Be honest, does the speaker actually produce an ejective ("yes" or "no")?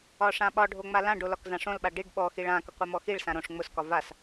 no